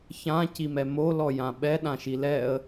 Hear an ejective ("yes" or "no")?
no